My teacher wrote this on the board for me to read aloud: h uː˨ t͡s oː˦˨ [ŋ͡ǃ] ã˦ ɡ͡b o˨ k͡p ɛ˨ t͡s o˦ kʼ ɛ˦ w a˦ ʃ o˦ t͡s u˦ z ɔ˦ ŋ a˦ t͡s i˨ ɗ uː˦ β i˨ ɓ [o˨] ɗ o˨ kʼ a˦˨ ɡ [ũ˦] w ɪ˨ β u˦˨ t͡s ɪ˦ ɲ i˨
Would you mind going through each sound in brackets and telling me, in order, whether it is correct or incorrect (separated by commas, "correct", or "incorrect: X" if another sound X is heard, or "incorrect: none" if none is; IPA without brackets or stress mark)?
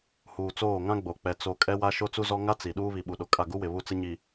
incorrect: ŋ, incorrect: u˨, incorrect: u˦